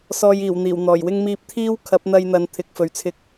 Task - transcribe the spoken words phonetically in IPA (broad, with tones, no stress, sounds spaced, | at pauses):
s ɔː˧ j iː˨˩ w n̪ iː˨˩ w n̪ ɔː˨˩ j w ɪ˥ ŋ m iː˥ p̚ t̪ʰ iː˥ w kʰ ɐ˨˥ p̚ n̪ ɐ˧ j n̪ ɐ˨˧ n t̪ʰ ɪ˨˥ k̚ f ɵ˨˧ ɥ t͡sʰ ɪ˧ k̚